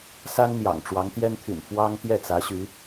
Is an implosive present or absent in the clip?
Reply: absent